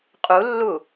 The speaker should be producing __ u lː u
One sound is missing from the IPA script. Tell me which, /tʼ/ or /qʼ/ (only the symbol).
qʼ